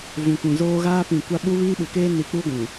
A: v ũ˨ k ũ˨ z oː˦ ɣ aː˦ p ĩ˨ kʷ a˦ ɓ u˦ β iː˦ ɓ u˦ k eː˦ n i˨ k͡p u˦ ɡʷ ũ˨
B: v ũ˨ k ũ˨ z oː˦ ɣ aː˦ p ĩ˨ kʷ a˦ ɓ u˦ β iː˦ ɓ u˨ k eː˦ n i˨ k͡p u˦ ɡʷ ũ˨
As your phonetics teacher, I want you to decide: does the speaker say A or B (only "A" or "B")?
B